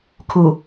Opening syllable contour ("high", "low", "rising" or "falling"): low